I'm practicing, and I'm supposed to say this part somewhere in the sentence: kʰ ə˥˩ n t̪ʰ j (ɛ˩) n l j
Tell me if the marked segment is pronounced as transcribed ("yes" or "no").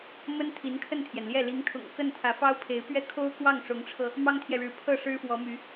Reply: yes